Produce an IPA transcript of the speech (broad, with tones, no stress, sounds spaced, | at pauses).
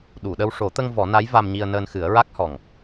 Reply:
ɗ u˨˩˨ ɗ ə˧ w ʂ o˨˩˦ t̪ ə˧ ŋ v ɔ˨˩˦ n a˧˥ j v a˧ m ɲ i˧ ə̯ n əː˧ n x ɨ˨˩˦ ə̯ ɹ a˦˥ k̚ h ɔ˨˩ ŋ